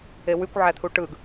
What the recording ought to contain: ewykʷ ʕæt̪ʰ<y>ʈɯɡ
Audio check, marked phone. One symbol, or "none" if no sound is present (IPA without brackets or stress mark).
u